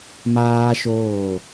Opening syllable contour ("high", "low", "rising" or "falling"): high